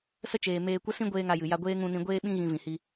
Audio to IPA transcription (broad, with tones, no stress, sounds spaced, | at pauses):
s ə˦ t͡ʃ eː˨ m eː˧ kʷ ə˦ s ĩ˦ ɡʷ eː˦ ŋ a˧ j ɨ˨ j a˧ ɡʷ eː˦ ŋ ũ˧ n ĩ˧ ɡʷ eː˧ ɓ ĩ˧ ɣ ĩ˧ v ĩ˨ h i˧